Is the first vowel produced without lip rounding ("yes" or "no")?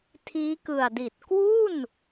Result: yes